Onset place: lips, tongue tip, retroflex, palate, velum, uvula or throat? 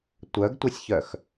tongue tip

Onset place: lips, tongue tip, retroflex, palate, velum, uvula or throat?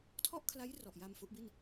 tongue tip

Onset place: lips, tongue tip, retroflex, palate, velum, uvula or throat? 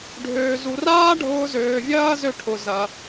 retroflex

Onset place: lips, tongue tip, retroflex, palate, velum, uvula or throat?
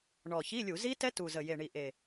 retroflex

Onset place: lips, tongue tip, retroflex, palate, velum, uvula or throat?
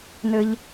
tongue tip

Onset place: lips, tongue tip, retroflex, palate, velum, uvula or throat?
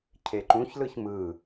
palate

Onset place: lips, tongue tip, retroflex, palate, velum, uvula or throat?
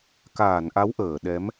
velum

